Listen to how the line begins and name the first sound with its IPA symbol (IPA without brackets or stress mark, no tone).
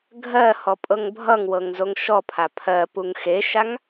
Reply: ɡʱ